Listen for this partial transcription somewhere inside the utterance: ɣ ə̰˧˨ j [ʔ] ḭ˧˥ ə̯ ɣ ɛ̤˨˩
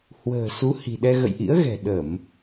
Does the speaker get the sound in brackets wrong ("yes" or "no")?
no